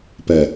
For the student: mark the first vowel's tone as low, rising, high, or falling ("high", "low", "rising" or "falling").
low